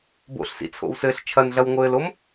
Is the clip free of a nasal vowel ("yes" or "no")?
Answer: yes